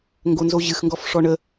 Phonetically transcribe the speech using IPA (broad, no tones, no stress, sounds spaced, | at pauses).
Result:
ŋ ɡ o n z o ʑ ɨ x ŋ ɡ ɔ f ʂ ɔ ɳ ə